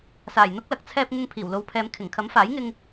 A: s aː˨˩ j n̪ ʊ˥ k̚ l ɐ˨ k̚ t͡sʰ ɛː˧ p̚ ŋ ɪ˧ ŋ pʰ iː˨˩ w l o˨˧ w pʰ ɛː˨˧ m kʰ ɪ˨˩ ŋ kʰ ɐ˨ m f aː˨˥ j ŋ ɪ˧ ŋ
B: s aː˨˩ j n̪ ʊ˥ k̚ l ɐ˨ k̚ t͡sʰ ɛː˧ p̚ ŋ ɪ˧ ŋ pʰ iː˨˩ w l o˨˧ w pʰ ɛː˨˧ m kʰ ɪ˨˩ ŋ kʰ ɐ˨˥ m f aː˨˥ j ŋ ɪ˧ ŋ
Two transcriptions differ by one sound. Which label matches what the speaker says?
B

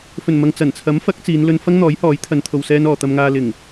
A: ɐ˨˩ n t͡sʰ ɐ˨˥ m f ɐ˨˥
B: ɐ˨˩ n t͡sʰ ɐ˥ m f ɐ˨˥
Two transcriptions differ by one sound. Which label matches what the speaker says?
A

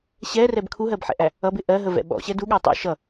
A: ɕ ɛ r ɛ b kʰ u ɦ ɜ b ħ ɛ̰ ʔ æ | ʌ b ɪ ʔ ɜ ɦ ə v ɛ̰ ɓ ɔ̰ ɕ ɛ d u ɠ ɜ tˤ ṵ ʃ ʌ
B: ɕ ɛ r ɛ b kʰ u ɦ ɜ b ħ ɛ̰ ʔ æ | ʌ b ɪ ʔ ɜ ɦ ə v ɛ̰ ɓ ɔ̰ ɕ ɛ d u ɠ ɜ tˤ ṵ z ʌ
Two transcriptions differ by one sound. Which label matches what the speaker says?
A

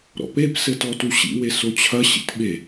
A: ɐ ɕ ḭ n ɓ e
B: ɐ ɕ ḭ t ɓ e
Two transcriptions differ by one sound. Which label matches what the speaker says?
B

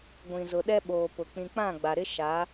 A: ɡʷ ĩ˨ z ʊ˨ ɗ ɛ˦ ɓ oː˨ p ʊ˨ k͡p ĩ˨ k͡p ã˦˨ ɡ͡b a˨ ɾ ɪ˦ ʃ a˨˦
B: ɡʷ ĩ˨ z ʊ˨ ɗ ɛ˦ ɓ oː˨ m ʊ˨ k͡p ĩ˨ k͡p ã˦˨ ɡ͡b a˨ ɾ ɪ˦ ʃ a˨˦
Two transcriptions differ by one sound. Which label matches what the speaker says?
A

